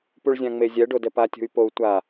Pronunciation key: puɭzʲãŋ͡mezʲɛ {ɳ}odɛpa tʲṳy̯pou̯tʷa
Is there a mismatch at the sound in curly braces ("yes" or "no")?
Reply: yes